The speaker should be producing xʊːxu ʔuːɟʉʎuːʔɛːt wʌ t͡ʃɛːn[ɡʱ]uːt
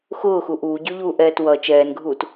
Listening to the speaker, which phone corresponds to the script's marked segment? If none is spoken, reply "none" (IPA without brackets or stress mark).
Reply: ɡʱ